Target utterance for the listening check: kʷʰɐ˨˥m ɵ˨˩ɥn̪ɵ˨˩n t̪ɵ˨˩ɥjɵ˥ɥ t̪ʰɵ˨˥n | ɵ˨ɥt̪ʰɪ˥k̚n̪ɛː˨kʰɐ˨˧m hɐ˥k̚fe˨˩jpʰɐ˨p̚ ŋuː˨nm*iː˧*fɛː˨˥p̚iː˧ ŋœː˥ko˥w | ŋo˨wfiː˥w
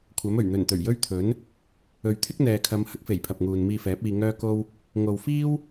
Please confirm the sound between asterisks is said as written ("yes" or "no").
yes